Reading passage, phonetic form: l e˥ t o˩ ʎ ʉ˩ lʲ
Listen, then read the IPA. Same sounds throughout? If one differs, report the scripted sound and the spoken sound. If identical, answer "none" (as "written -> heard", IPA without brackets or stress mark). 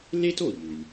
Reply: none